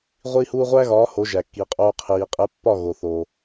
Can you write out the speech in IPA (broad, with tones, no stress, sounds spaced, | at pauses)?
ʁʷ iː˦ h uː˦ ʁʷ æ˦ ɣ ɒː˨˦ h o˨˦ ʒ æ˨ kː i˨ qʼ oː˧ qʰ iː˨ qʼ e˨˦ pː ɒ˦˨ ɣ o˨ θ o˨